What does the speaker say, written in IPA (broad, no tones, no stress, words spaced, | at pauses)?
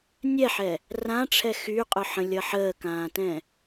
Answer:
nʲɛħɛ | rãʈ͡ʂʰɛ xyqʼʊħə̃lʲʌ ħəːkãːtɛ̃